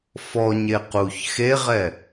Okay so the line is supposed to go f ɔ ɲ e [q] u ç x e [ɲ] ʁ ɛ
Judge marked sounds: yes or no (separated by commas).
yes, no